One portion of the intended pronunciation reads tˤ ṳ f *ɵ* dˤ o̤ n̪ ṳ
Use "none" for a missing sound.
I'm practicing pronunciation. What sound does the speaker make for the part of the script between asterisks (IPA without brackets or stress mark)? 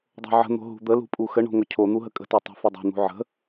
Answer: ɵ